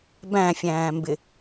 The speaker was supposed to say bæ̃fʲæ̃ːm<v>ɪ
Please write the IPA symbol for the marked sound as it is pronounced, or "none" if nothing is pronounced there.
b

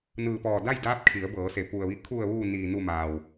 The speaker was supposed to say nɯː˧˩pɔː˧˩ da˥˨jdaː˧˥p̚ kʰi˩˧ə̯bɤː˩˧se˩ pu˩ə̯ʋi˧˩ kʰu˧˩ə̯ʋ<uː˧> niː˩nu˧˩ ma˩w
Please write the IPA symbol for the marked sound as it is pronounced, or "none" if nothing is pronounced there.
uː˧˩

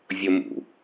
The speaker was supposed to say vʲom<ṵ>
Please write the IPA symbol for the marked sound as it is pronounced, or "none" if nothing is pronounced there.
ṵ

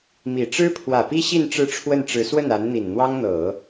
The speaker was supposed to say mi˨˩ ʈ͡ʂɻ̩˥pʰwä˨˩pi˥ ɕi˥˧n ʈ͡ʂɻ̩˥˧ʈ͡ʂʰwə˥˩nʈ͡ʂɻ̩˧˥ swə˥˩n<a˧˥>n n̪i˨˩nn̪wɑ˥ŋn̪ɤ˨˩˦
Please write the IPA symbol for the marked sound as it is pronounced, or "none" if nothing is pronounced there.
a˧˥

